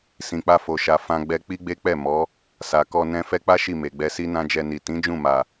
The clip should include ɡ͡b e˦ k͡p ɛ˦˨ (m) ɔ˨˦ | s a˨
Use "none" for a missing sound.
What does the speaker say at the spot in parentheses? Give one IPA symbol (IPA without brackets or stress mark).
m